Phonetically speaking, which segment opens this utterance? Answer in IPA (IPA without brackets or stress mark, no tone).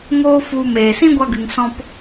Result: ŋ